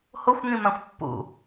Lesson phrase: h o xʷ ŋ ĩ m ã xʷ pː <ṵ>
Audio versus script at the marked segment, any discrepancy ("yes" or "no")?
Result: no